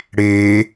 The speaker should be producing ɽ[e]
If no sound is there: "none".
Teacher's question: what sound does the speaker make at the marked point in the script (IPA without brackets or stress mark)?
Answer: e